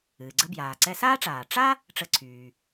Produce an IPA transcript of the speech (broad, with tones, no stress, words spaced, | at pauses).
ɨː˩ɡ͡ǀə˧ bjaː˩ǀɛ˧saː˥ʈ͡ʂaː˩ ʈ͡ʂa˥ | ʈ͡ʂə˧ǀʰyː˩